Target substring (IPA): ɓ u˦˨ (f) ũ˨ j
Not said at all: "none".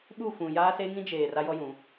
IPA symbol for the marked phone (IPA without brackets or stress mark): f